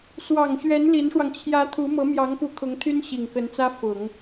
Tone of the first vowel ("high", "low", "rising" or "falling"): low